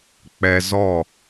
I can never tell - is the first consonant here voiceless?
yes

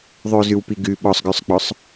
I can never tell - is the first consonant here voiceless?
no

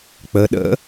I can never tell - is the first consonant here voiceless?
yes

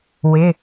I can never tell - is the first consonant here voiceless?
no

